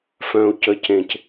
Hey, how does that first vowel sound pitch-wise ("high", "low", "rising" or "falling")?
low